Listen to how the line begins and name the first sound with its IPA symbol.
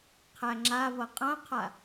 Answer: qʰ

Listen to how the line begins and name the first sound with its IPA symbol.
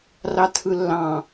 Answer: r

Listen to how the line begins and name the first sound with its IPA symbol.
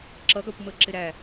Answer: ǁ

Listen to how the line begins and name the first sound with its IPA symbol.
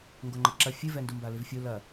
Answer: ŋ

